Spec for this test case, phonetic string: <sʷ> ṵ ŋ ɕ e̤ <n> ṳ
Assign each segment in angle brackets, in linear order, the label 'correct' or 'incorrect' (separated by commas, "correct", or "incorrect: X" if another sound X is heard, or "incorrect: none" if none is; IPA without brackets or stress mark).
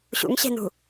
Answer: incorrect: ɕ, correct